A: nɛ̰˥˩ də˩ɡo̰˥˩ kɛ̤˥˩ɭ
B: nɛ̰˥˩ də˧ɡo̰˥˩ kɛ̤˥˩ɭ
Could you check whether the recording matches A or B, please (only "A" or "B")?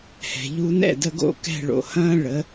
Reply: B